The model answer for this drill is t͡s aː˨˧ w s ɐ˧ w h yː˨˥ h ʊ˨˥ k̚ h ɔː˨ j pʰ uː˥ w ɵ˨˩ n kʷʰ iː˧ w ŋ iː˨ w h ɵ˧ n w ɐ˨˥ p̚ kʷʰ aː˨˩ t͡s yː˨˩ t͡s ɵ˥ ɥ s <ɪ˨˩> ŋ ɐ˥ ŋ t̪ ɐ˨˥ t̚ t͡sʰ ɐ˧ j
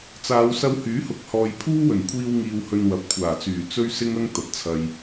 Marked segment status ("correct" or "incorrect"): incorrect